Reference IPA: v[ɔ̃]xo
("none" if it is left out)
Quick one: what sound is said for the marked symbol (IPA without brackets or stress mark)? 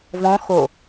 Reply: ɔ̃